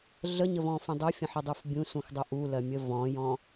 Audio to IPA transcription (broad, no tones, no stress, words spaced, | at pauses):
ɮəɲəvɔ̃fə̃ dˤofʲə̃ħədˤuf bʲũsũxdˤo ʔulɜmʲə vɔ̃jɔ̃